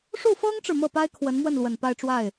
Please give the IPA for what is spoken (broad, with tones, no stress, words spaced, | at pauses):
ʂu˥˩fɤ˥ŋʈ͡ʂɻ̩˨ mɤ˥˩pa˥ɪ̯ kʰwə˧˥nmwə˥˩nlwə˨˩n pa˥˧ɪ̯ʈ͡ʂwa˥˩ɪ̯